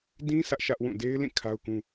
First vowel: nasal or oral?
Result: nasal